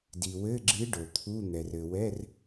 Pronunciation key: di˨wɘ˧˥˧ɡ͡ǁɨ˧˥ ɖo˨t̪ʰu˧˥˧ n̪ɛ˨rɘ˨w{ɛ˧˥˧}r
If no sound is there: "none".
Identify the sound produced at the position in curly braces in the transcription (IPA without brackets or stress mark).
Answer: ɛ˧˥˧